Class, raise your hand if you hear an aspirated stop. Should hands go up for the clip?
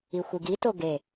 no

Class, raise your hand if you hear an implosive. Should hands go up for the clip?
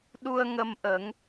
yes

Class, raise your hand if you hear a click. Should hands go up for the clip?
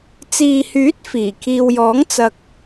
no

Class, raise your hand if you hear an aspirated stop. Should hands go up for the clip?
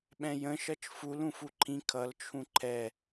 yes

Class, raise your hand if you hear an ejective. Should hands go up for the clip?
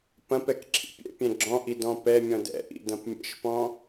no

